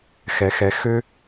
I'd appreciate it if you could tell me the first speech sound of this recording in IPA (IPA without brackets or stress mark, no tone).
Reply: x